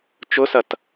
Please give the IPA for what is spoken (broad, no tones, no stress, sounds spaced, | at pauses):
t͡ʃ ʊ s ɐ t